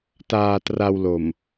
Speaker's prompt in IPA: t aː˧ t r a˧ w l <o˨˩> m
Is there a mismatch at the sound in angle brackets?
no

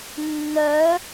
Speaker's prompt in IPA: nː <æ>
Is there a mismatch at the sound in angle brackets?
yes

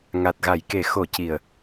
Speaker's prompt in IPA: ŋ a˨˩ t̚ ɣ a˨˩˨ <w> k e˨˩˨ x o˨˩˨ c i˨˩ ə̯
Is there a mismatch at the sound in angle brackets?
yes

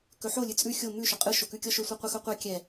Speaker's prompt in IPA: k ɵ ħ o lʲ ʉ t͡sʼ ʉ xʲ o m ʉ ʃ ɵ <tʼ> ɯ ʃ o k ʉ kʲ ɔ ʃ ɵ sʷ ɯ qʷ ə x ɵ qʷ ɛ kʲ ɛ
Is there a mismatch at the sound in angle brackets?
yes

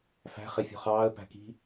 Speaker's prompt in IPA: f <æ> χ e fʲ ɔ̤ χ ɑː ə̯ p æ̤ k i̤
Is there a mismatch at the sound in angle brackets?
yes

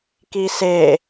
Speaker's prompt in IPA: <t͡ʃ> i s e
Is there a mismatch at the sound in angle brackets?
yes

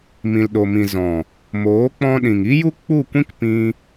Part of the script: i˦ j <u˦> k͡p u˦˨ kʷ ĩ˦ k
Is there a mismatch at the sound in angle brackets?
no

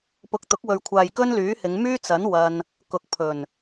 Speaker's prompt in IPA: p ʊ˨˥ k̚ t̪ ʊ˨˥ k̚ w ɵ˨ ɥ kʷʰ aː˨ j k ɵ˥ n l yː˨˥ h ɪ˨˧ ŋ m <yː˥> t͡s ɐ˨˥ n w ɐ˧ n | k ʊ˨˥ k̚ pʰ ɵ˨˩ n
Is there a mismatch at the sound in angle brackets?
no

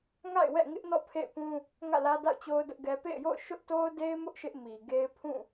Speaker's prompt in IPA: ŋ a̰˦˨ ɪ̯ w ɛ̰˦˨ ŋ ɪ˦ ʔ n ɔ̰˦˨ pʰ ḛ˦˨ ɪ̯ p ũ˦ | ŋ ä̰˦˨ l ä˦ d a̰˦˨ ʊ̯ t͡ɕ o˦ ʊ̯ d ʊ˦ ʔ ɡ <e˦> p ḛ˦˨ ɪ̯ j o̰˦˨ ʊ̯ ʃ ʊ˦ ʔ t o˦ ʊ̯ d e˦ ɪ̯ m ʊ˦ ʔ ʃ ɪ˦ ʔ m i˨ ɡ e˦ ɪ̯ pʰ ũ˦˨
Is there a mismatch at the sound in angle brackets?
yes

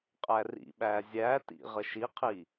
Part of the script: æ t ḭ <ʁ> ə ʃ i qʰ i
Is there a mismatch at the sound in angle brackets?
no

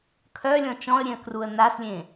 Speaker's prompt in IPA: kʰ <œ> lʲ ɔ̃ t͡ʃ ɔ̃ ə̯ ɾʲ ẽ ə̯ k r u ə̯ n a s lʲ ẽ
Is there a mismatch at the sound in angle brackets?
no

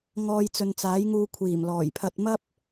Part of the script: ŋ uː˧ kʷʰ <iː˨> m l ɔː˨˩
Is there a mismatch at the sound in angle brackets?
yes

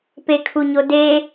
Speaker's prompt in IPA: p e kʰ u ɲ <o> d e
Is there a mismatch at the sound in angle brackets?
no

